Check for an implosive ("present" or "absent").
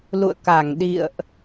present